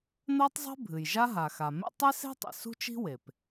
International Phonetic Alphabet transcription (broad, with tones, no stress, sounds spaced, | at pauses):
n̪ ɜ˥ tˤ zˤ e̤˥ bʱ ɨ˩ j ʒ a˥ ɦ a˩ x a˩ m ḛ˥ tˤ e˥ s e̤˥ tˤ ḭ˩ s ṳ˥ t͡ʃ i̤˥ w e˩ p